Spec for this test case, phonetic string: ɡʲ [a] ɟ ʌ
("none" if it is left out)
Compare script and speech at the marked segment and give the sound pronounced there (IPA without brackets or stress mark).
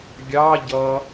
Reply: ɑ